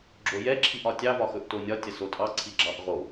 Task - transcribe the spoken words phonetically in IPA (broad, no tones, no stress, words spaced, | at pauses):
ɡ͡ǁojɛ ǁʰiʔɒtʲɑ vɒxɵʔtonʲɒ tʲɐsotʼɑ ǀʰiɡ͡ǁɑʔ ʁo